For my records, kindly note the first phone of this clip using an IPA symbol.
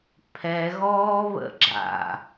pʰ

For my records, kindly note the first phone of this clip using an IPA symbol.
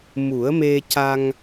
m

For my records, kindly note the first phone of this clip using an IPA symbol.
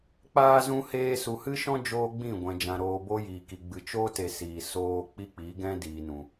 k͡p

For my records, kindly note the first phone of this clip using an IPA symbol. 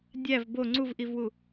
dʲ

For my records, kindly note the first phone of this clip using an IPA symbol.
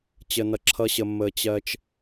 t͡ɕ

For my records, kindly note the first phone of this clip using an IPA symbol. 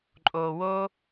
ǃʼ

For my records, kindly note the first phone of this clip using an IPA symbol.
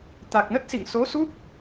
t̪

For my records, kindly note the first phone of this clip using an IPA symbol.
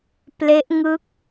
p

